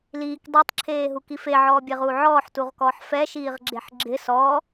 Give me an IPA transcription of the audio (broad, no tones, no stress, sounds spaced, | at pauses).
l iː k dˤ e tˤ ǁʰ eː ɦ u k i f e ʕ ɔː bʲ e ʁ uː ʕ ɔː ħ t u ʁ k ɔː ħ f ɛ ʃ iː ʁ ɡ͡ǁ e ħ ɡ͡ǁ ɪ s ɔː